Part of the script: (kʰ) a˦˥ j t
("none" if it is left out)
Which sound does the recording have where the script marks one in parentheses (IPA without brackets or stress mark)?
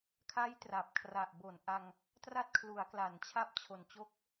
kʰ